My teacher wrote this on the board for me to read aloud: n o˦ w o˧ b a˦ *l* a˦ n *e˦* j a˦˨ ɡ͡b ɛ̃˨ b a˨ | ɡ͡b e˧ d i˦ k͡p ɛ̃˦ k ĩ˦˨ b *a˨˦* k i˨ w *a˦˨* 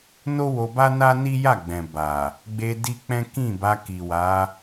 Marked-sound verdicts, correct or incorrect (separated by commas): incorrect, incorrect, incorrect, incorrect